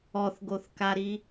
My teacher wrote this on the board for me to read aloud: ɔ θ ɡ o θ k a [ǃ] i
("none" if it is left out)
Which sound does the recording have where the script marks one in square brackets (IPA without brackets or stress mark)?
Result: ɾ